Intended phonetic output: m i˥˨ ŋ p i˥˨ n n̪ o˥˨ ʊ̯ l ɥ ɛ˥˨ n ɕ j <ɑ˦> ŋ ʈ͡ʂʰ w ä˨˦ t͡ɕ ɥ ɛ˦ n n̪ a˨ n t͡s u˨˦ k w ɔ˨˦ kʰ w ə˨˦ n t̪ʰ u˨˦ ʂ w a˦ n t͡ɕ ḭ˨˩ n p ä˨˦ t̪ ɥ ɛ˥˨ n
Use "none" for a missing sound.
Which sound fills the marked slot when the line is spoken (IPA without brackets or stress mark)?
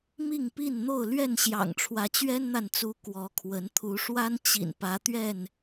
ɑ̰˨˩